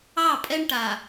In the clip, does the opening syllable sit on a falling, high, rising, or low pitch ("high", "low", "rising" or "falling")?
falling